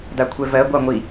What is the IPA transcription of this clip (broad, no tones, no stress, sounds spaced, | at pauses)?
d a kʷʰ ɛ v ɜ ɡʷ ɑ ŋʷ i